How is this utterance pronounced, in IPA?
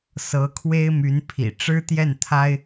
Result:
s ɤ˧˥ kʰ w e˥ ɪ̯ m y˧˥ n pʰ ḭ˨˩ ʈ͡ʂ ɻ̩˥ t̪ j ɛ˥˩ n t̪ʰ a˥ ɪ̯

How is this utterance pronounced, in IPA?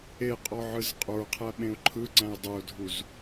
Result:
e qʼ ɔ ʕ ɯ z qʼ ə˞ qʰ æ ɓ ẽ ʊ̯ ǃʰ ɯ ǀ æ̃ ɪ̯ dˤ ɯ ʊ̯ dʱ u z

